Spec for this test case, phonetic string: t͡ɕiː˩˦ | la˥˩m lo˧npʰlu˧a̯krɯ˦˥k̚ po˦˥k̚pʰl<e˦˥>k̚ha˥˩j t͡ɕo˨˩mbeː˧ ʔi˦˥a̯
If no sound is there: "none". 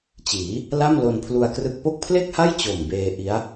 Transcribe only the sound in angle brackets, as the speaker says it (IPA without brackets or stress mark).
e˥˩